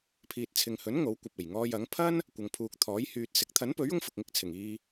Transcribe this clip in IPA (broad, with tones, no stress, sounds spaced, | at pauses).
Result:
pʰ iː˨ t̚ t͡sʰ ɪ˨ ŋ h ɵ˨˥ n ŋ o˨˥ w kʷ ɐ˨ p̚ e˨˩ j ŋ ɔː˧ j ɐ˨˥ ŋ pʰ ɐ˥ n | kʷ ɐ˨ ŋ pʰ uː˨ k̚ t̪ʰ ɔː˨˥ j h yː˨ t̚ s ɪ˨˥ k̚ t̪ʰ ɐ˨˥ n p ɵ˨˥ ɥ ʊ˧ ŋ f ʊ˨ k̚ ŋ ɪ˧ k̚ t͡sʰ ɪ˨˩ ŋ iː˧